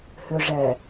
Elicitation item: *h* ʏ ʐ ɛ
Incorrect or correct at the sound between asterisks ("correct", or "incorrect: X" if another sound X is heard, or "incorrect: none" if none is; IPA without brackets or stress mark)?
correct